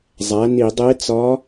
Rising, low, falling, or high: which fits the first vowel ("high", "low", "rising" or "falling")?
rising